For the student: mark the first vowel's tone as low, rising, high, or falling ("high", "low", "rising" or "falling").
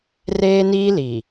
high